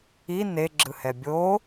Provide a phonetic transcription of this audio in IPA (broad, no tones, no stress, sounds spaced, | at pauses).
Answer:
i n e ɡ͡ǁ ɯ h ɛ bʲ o